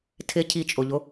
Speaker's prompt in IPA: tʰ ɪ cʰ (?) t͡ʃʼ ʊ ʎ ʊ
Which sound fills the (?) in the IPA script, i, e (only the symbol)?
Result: i